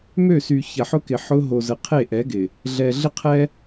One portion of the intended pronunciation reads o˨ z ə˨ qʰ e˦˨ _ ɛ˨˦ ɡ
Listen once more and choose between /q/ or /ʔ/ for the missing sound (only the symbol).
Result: ʔ